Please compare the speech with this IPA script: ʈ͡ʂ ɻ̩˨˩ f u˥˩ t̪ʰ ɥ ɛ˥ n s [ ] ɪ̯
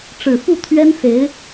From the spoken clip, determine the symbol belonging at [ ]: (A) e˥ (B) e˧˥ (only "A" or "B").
B